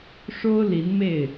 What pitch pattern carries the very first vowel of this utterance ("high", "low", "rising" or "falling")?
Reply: high